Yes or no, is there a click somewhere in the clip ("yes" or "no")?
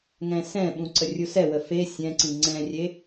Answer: yes